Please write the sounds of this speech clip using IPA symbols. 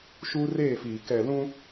ʃuː˦reː˦˨fiː˨ kɛ˨lũ˦

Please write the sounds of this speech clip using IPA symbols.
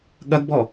ɠɐɡbɔ

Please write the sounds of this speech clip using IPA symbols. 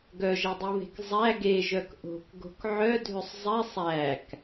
ɡœʒɛdˤuβe̤k zˤæ ɡeʒœk ʔo̤kɡo̤k ʕœdʱøsˤ zˤɛsˤ æk

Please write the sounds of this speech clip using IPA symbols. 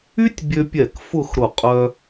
y˥tʲbʲø˧pʲɛ˧˩k fʊ˥˧xɾʊ˧˩ qʼœ˧

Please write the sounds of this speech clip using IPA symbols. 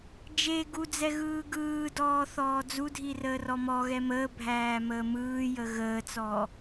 d͡ʒe ɡud͡zɛ ɣɯːɡɯːdɔː θɔːd͡zudʱi rəːrɔmɔɣɛ məːbʱæː məːmɯːjə ɣəːt͡sɔ

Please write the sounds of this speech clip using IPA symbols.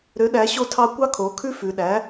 ɾø˩˥ ɗæ˩˥ɕo˦tʰɑ˦ kʷɑ˦kʰo˩˧kʰʉ˦ fʉ˩˧ɗæ˩˥

